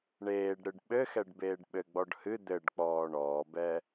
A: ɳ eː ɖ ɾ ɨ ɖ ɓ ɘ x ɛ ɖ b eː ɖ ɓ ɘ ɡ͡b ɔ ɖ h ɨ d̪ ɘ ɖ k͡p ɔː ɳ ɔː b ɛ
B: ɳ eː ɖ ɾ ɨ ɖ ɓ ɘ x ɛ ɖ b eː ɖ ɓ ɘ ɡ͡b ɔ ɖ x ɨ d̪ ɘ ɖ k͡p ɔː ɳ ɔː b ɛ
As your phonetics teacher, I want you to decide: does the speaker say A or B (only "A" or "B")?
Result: A